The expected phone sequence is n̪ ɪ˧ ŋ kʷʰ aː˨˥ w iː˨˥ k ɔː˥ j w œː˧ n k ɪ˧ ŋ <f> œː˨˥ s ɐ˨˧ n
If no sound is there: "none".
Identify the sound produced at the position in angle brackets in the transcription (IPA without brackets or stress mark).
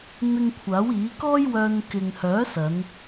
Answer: h